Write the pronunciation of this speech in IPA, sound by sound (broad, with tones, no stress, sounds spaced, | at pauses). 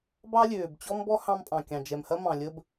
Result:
b ɑ˥ lʲ øː˩ b t͡ɕ ɔ˥ m b ɔ˥ h ɑ̃˥ m pʼ ɑ̃˩ kʲ ɑ̃˩ d͡ʒ ɛ˩ m h ɐ˥ m ɑ̃˩ lʲ ə˥ b